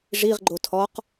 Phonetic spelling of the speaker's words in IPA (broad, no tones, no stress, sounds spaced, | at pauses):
ʐ i ʁ ɡ͡ǃ o tʰ ɔ q